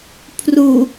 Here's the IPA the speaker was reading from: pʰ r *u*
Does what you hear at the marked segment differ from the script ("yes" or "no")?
no